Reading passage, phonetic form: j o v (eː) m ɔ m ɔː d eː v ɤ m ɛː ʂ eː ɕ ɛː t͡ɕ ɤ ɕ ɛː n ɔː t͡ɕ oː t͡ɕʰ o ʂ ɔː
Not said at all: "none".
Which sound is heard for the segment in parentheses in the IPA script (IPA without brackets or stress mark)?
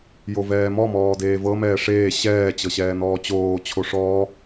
ɛː